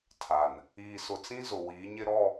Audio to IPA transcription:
tʰ a˨ n | iː˨ s ʊ˨ t͡s ĩ˦ z ʊ˨ w iː˨˦ ɲ ɪ˦ ɾ ɔ˦˨

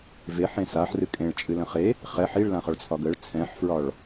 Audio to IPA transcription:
v e ħ ẽ s a ħ r ɨ kʼ ẽ ɭ t͡ʃʼ ɨ l ə̃ χ e | χ ɛ ħ i ɭ l ã χ ɒ ɭ t͡sʰ ɒ ɡ ə ɭ t͡sʰ ɛ̃ ħ f ɹ ɒ ɭ

